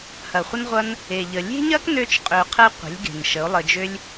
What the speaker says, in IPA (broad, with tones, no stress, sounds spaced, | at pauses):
h ɐ˨ χʷ ə˦ n ʁʷ ɐ˦ n | e˨ ʎ ə˨ lʲ e̤˦ ɲ ɐ˦ k n ø˦ t͡ʃ qʼ ø˧ qʰ ɛ˦ qʷ e̤˨˦ lʲ ɡ e̤˨ n ʃ ə˨˦ o̯ lˠ ə˧ d͡ʒ ø˦ lʲ